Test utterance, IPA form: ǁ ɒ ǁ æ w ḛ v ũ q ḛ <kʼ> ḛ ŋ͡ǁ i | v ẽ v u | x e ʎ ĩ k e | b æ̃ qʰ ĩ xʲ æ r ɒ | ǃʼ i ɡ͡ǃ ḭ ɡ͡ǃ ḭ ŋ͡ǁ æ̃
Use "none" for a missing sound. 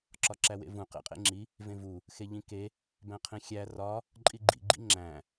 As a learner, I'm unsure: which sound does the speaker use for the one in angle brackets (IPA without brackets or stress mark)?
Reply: qʼ